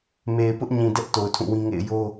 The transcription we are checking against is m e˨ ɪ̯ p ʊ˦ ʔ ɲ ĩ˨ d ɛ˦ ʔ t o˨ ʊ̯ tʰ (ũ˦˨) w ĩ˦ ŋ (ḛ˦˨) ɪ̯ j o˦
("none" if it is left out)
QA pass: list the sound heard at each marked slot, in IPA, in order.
ũ˦˨, ḛ˦˨

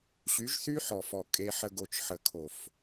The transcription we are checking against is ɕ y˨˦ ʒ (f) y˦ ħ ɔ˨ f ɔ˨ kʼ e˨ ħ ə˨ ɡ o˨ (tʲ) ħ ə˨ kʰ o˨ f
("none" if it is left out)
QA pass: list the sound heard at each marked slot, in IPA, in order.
θ, t͡ʃ

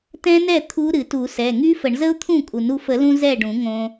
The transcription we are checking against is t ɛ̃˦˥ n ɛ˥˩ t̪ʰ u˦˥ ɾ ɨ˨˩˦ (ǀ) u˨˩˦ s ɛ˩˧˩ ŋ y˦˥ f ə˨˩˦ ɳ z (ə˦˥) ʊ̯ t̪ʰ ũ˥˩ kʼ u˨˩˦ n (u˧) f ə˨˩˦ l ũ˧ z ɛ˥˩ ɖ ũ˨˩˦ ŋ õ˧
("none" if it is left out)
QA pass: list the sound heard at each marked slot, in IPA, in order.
t, ə˦˥, u˧

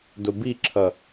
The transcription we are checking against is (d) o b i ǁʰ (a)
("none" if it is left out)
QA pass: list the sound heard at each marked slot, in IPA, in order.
d, ʌ

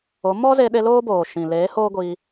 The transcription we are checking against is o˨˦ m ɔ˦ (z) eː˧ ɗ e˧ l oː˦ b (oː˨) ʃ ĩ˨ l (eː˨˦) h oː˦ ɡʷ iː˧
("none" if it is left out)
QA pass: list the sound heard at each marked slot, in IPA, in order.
z, oː˨, eː˨˦

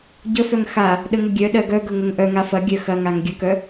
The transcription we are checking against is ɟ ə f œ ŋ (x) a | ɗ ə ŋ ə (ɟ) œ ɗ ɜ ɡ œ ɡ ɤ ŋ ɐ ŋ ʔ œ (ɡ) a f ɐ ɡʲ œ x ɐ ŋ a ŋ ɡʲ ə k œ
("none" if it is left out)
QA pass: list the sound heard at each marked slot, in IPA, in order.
x, ɡʲ, ŋ

